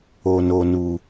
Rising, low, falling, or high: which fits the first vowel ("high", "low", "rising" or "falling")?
low